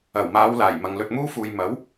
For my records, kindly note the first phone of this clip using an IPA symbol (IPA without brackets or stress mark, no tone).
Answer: ɐ